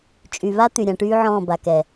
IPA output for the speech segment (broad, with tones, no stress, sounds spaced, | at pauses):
t͡ʃʼ y˨ β a˦ t̪ y˨ ɾʲ ã˨ ʈ yː˦ ʕ ɔ̃ː˦˨ b a˨ k ɛ˨